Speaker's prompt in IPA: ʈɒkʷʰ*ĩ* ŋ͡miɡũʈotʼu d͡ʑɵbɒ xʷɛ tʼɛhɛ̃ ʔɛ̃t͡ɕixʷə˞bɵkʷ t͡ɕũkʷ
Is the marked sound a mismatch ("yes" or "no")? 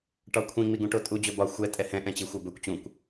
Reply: no